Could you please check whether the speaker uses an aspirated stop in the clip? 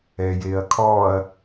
yes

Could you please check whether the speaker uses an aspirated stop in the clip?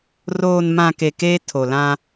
yes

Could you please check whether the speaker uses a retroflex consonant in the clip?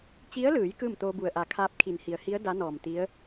no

